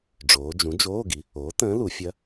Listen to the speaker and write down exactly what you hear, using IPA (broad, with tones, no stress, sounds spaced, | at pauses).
ɖ͡ʐ oː˩˧ d͡ʒ ũ˩˥ d͡ʒ oː˧˥˧ ɡ i˩˥ | oː˩˥ t ə̃ː˧˥ l u˩˧ fʲ ɐ˧˥